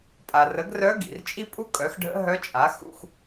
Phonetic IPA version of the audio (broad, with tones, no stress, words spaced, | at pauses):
pʼa˩rə˩˥ɡrœ˧˥ ɡḭ˩rt͡ʃʼi˥pʼu˥ kʼœ˩˥xɖʱə̰˧˥ɦœ˧˥t͡ʃʼa˩˥ xṵ˧x